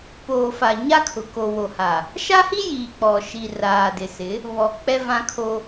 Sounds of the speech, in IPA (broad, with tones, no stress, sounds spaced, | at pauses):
p oː˨ f a˨ ɲ a˦ kʰ ʊ˨ k o˨ w o˨ h a˨ | ʃ a˦ h i˦ j iː˨ k͡p ɔ˨ ʃ i˨ r aː˨ d ɪ˨ s ɪ˨˦ | β ɔ˨ k͡p ɛ˦ v ã˦ kʰ o˦